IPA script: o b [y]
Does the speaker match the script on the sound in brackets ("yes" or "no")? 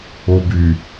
yes